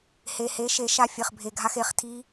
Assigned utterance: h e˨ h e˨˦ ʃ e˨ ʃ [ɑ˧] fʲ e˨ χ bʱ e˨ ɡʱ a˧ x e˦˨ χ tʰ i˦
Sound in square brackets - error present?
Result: yes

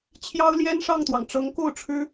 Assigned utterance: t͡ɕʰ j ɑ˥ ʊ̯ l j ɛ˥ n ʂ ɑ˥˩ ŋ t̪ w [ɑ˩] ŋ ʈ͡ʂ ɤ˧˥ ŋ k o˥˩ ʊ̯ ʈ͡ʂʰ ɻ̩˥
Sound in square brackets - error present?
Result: no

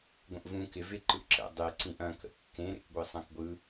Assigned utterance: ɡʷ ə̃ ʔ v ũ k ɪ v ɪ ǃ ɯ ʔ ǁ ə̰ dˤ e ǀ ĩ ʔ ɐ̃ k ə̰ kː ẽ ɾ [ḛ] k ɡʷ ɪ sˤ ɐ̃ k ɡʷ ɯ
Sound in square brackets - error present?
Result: no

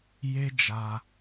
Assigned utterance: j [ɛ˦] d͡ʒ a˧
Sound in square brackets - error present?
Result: yes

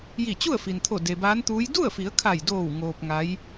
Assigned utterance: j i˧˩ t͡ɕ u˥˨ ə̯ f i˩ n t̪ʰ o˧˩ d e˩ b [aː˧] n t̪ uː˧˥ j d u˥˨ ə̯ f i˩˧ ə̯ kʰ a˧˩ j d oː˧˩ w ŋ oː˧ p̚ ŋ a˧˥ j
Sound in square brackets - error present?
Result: yes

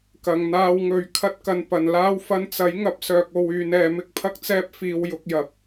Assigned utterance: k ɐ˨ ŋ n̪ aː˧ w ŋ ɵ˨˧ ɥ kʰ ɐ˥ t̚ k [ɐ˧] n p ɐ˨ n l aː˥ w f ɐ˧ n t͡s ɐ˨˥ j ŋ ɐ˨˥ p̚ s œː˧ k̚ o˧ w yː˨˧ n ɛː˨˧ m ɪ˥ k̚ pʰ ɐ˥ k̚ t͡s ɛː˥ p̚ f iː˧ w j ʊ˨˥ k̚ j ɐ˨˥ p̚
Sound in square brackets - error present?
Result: no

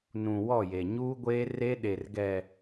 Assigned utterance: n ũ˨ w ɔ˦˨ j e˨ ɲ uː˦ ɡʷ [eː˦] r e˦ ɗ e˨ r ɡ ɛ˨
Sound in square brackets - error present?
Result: no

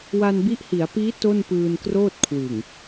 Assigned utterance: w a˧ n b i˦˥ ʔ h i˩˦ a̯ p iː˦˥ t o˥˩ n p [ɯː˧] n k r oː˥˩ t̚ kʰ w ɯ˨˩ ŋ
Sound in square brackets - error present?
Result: no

